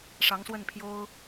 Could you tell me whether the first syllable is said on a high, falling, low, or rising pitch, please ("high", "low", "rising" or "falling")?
rising